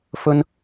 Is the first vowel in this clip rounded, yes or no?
yes